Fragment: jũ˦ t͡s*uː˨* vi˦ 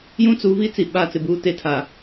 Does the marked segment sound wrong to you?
yes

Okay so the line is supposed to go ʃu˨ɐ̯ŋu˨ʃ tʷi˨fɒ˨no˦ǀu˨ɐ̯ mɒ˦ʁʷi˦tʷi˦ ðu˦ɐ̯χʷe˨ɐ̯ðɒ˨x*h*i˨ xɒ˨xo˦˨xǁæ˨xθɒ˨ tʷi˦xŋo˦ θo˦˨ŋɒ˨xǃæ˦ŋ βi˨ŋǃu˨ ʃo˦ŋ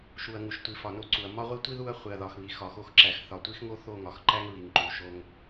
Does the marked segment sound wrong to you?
yes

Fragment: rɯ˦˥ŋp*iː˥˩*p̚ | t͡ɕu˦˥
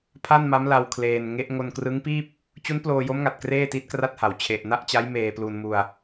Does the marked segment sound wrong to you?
no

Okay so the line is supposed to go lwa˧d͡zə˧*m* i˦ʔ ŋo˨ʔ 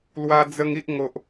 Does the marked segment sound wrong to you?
yes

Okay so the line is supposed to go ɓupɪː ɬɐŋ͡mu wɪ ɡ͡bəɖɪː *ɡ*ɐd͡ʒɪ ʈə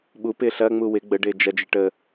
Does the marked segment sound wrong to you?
yes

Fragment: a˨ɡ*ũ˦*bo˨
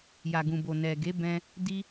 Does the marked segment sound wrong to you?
yes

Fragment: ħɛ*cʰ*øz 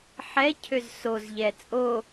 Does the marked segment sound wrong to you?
no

